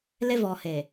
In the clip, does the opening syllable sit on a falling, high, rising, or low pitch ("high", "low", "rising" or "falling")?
high